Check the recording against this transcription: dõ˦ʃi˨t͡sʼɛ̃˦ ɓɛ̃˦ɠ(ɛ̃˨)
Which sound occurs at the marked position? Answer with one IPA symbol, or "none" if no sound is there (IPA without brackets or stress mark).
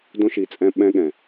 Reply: ɛ̃˨